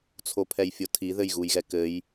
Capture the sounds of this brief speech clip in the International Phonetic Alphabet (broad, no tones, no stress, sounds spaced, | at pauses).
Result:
t͡sʰ o pʰ ɛ j fʲ o tʰ i ð ɘ j ɣ u j ɣ ɛ k ɘ j